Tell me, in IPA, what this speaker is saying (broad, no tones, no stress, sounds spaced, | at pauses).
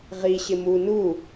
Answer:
ʁ i ɕ ɪ m u n u